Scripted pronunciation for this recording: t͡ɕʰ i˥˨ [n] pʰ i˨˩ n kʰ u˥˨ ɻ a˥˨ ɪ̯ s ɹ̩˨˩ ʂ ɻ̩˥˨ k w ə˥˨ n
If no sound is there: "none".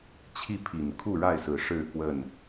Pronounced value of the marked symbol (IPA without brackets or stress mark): none